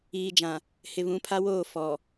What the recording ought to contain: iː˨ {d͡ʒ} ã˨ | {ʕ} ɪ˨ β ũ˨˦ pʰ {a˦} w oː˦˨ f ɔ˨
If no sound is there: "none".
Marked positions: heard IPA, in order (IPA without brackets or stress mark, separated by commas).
d͡ʒ, h, a˦